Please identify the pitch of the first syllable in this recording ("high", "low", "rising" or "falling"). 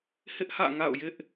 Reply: high